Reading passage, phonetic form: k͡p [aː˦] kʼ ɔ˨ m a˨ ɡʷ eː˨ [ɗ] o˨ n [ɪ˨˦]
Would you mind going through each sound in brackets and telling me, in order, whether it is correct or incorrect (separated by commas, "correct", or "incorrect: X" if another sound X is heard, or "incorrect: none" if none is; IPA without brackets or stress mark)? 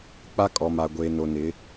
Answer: incorrect: a˦, incorrect: n, correct